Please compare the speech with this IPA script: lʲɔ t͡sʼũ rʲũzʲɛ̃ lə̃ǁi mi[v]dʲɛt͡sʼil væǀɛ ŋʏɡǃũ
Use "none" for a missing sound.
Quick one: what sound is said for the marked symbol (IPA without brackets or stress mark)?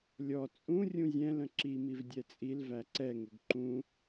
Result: v